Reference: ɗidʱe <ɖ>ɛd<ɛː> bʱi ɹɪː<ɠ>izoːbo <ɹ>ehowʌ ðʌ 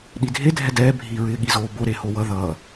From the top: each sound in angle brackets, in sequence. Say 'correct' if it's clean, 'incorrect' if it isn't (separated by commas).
incorrect, correct, correct, incorrect